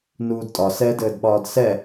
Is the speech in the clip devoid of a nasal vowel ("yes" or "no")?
yes